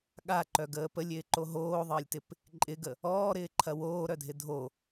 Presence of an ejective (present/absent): present